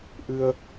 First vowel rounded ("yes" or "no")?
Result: no